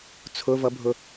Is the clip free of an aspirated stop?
no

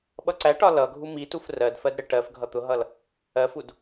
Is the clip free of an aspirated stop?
yes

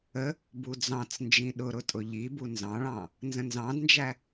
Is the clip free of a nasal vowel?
no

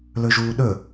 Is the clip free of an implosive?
no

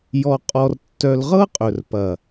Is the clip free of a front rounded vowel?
no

